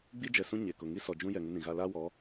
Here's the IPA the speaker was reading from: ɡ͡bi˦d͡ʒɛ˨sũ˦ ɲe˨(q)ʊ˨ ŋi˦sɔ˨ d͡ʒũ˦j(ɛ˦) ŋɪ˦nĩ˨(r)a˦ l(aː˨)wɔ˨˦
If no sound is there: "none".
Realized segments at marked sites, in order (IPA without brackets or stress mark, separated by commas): k, ɛ˨, ɣ, aː˦